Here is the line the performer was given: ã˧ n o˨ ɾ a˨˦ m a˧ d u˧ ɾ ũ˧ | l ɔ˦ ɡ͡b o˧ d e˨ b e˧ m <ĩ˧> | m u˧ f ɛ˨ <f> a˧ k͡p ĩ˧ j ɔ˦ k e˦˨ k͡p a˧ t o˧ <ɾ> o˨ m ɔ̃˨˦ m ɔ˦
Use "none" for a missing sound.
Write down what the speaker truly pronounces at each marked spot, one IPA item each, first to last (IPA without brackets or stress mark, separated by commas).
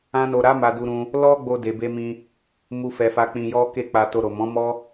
ĩ˧, f, ɾ